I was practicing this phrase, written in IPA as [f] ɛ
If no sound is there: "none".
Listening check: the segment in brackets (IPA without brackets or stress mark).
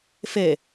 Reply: f